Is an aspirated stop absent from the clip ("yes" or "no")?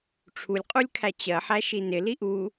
no